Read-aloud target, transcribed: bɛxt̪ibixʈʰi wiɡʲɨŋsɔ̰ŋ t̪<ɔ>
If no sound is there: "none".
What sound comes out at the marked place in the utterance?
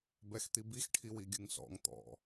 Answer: ɔ̰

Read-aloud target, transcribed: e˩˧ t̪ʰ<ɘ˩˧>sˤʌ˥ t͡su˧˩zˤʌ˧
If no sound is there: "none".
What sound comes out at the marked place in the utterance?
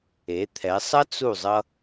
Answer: ɛ˩˧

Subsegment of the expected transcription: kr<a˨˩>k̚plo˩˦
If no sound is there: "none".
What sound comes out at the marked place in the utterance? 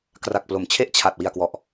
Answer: a˨˩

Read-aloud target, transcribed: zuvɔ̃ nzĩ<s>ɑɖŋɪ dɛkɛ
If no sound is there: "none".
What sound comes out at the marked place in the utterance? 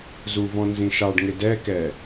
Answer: ʃ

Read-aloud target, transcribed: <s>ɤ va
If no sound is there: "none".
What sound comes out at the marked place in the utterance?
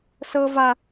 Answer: s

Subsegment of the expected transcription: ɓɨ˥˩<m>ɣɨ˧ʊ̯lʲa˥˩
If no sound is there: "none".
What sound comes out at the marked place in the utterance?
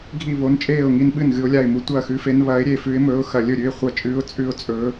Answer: n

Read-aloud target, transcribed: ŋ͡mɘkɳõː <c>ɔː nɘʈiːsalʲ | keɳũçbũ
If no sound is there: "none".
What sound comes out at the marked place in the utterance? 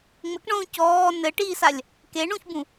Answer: c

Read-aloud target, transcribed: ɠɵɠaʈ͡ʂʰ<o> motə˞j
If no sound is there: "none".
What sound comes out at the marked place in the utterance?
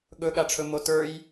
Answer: ɵ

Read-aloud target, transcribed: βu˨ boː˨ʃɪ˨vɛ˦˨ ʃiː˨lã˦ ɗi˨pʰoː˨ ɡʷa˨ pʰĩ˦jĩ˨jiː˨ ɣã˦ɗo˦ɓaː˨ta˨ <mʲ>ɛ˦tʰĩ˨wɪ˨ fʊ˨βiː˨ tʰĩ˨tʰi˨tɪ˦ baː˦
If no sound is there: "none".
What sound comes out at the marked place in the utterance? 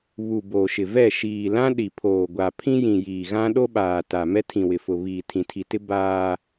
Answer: m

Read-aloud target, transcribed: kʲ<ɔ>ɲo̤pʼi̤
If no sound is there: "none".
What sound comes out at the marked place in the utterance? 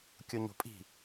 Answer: o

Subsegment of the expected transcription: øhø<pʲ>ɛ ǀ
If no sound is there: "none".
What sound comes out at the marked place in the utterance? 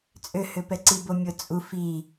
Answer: p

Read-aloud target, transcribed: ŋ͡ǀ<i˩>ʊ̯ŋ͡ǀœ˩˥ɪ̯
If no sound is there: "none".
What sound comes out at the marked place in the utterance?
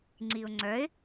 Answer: i˩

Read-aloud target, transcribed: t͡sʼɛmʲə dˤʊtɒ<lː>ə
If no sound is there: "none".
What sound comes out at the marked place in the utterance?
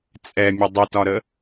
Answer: ɾ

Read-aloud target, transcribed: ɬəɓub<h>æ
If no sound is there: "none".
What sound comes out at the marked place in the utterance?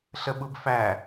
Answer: f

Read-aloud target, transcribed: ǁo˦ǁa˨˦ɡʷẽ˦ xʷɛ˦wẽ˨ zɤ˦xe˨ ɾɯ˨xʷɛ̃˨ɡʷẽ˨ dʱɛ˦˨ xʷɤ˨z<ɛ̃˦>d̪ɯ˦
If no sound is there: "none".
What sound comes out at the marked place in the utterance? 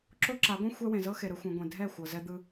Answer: ɛ˦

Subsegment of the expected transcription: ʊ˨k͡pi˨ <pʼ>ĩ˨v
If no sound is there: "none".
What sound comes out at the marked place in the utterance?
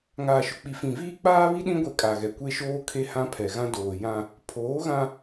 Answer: f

